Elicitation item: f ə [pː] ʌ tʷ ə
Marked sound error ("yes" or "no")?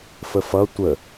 yes